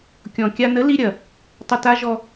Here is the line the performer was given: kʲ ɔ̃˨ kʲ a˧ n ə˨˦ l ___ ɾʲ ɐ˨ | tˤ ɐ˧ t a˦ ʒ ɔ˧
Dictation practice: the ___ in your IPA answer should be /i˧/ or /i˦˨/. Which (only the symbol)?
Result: i˧